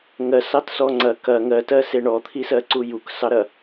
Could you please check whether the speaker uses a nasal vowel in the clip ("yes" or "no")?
no